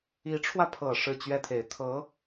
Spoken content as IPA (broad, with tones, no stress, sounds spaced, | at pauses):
i˧˥ ʈ͡ʂʰ w ä˧ pʰ ɤ˨˩ ʂ ɻ̩˥˩ t͡ɕ ɥ ɛ˥ t̪ʰ e˨˩ ɪ̯ t̪ʰ ɤ˧˥